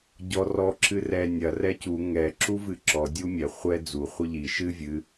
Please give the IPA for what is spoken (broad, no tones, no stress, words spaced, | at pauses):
ɟɔ rɔ ǁɨrɛ nʲɐ rɛcu ŋɛ ǁuvɨǁɔ dʲumʲɛ χʷɛ d͡zu χʷɨʎi ʃɨ vʲɨ